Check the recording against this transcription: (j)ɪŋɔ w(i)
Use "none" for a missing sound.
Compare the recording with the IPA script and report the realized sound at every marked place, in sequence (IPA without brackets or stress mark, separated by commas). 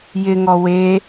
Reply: j, e